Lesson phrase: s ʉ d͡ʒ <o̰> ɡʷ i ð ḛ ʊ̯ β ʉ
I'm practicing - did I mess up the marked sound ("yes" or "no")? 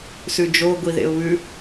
yes